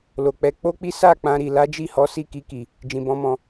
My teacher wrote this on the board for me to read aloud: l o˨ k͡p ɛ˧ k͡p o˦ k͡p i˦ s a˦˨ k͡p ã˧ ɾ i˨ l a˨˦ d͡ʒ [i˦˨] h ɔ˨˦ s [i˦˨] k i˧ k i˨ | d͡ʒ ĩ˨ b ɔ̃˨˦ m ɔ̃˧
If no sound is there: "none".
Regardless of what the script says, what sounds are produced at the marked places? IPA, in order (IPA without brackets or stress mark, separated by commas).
i˦˨, i˦˨